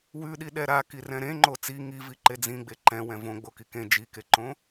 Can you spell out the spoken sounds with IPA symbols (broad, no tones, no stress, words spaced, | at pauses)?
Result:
wʉɗiɗɛ ɾakirɛ̃ ɾẽŋ͡ǃo t͡si ŋiviǃe d͡zĩɡ͡be ǃɛ̃wɛ̃ võɡ͡boki kẽ d͡ʒikeǃõ